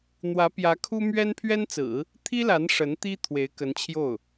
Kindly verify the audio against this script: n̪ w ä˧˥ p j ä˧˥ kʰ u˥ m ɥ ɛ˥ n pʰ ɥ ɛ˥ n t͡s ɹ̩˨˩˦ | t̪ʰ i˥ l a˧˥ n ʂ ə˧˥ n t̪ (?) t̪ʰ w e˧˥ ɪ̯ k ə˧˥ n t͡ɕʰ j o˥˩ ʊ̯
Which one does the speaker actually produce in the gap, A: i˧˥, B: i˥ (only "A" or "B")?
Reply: B